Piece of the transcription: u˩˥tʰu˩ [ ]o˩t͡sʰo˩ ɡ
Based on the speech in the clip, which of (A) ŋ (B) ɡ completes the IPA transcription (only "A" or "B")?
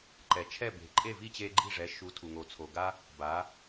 A